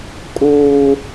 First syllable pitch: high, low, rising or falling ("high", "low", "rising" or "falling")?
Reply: high